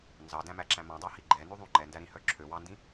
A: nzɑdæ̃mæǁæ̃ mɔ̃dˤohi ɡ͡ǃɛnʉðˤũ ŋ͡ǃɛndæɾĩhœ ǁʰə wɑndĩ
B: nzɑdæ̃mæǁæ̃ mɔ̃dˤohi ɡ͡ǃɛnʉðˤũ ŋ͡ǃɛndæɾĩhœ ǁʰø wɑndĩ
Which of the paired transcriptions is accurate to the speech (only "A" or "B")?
B